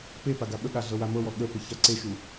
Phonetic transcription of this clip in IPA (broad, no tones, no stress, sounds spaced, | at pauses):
p e p a ɡ a ɓ ə ɠ a ɮ ɤ w a m ɤ w ɔ ɠ ə p ə ç a ǀ e ʃ u